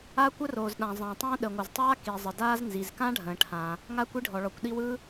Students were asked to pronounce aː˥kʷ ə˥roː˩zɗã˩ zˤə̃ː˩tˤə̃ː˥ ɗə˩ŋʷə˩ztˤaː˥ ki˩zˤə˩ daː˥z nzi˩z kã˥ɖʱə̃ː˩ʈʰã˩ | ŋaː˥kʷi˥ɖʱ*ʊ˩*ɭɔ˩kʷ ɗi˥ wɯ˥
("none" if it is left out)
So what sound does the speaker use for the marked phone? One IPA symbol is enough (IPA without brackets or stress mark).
ɔ˩